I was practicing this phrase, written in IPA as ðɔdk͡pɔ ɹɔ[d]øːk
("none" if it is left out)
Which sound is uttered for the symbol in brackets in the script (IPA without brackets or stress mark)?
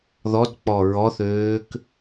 θ